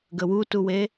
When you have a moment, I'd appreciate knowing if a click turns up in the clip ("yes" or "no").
no